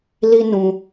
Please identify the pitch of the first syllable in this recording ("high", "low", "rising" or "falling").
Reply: high